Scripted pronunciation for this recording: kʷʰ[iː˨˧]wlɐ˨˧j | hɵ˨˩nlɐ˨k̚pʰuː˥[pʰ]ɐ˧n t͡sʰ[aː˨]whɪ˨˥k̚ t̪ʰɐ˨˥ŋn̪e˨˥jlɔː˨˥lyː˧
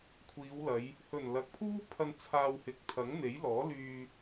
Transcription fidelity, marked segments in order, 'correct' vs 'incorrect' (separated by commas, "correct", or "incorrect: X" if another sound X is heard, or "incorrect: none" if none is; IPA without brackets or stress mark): correct, correct, incorrect: aː˧